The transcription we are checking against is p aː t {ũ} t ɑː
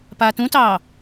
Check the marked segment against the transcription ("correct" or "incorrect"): correct